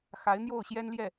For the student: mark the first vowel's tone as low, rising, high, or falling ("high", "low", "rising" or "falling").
rising